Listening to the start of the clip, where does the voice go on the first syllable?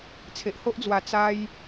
low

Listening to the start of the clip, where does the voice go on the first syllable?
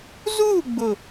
falling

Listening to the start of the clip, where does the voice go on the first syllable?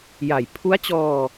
low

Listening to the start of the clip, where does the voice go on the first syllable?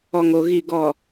low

